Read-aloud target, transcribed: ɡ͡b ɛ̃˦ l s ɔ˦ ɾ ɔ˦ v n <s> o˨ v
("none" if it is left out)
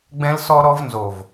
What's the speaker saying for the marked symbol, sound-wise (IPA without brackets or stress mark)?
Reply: z